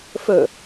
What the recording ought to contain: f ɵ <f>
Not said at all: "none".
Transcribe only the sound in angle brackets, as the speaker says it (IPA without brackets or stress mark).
none